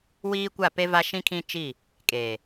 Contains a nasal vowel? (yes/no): yes